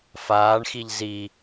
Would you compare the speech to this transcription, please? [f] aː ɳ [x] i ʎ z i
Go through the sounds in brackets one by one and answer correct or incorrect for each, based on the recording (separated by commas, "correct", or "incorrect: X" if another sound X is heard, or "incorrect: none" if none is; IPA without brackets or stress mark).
correct, correct